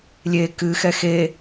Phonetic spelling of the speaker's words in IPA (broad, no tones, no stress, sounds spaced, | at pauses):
lʲ e k ɨ x ɛ x e